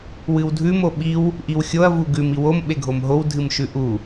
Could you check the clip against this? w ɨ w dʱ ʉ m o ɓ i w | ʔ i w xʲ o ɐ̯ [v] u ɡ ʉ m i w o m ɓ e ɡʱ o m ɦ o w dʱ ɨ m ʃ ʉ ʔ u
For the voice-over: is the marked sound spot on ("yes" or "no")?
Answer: yes